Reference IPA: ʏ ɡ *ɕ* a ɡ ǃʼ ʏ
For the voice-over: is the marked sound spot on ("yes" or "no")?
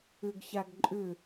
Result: yes